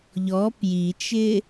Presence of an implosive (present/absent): absent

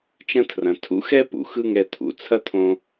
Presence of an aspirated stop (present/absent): present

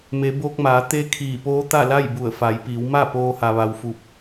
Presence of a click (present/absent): absent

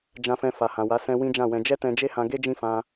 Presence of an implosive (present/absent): absent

